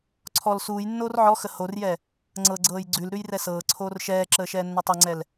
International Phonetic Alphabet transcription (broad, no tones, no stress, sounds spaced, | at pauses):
ǀʰ ɔ l s uː j nː oː r ʕ ɔ x ə h o r j ɛ | ŋ͡ǀ ɤ ɡ͡ǀ ɤː j ɡ͡ǀ ʉ l ɾ ʉ j r ɛ s ɤː ǀʰ oː r ʃ ɛː ǁ əː ʃ ɛː nː ɤ tˤ ɤ ŋ͡ǀ ɛ l